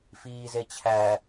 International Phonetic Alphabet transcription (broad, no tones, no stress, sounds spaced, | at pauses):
f iː z e t͡ɕʰ æ